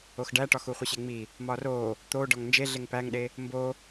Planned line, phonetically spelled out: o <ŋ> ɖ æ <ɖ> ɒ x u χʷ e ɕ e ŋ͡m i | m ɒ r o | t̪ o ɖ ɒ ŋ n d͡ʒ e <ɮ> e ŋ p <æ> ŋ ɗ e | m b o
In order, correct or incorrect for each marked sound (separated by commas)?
incorrect, incorrect, correct, correct